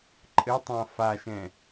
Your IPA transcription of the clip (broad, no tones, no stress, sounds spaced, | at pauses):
ǃʼ ɘ tˤ ã f a ʃ ɛ̃